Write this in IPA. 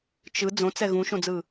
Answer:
t͡ʃ ɯ d͡z õ t͡s ɛ ɣ ũ ʃ õ d͡z ɯː

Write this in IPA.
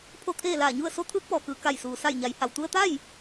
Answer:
pʰ o˥˨ t̪ʰ eː˥˨ l aː˧˩ ɲ u˥˨ ə̯ s o˧˥ t̪ʰ ɯː˧˥ k̚ p ɔː˩ k ɯː˩ k a˧˩ j s uː˩ s a˧˩ j ɲ a˩˧ j h a˩ w t̪ u˧ ə̯ t̪ a˥˨ j

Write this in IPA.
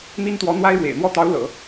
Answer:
n̪ i˥ n t̪ w ɔ˧˥ n̪ w a˥ ɪ̯ ɻ w ḛ˨˩ ɪ̯ n̪ w ɔ˥˩ t̪ ɑ˧˥ ʊ̯ l ɤ̰˨˩˦

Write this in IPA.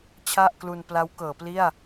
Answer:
t͡ɕʰ a˥˩ ʔ k l u˧ n p l a˦˥ w k ɤː˩˦ p l i˥˩ a̯

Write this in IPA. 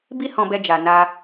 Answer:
b i˦ h ɔ̃˧ b ɛ˧ d͡ʒ a˨ n a˧

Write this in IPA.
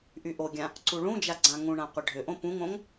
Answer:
ʔ y ʔ o ɡʲ ã | ǀ u ɭ ũ d͡ʒ a ɡ͡ǀ ã ŋ ũ ɳ ã qʷ ɘ ɖʱ ʏ ʔ õ p ũ ŋ õ ŋ

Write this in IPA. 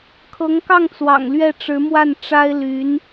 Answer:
kʰ ɤ˧˥ ŋ k ɑ˥˩ ŋ t͡s w ɑ̰˨˩ ŋ l ɥ ɛ˥˩ ʈ͡ʂ ɻ̩˧˥ m w a˥˩ n ʈ͡ʂ a˥ ɪ̯ l y˧˥ n

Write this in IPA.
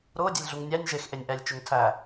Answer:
ɾ ʊː dʲ e lʲ ɮ u ŋ nʲ æ nʲ ʒ e x ʔ e nʲ ʔ æ lʲ t͡ʃ ʊ ŋ tʰ æ

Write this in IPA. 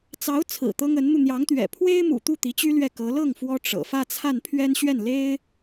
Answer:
t͡s ɑ˧˥ ʊ̯ t͡sʰ ɹ̩˨˩ t̪ ɤ˥ ŋ ə˧˥ n n̪ u˧ n̪ j ɑ˧˥ ŋ t̪ ɥ ɛ̰˨˩ pʰ w e˥ ɪ̯ m ṵ˨˩ t̪ u˥˩ t̪ i˧˥ t͡ɕ y˥ l ɥ ɛ˥˩ k ɤ˧˥ l ɤ˥˩ ŋ f w ɔ˥ ʈ͡ʂ ɤ̰˨˩ f ä˥˧ t͡sʰ a˥˩ n pʰ ɥ ɛ˥ n ɕ ɥ ɛ˥˩ n l e˥ ɪ̯

